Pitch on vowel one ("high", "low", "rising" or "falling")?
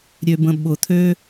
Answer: low